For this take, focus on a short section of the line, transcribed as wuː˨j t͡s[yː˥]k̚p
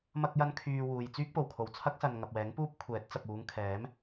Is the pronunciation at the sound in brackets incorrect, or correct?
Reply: correct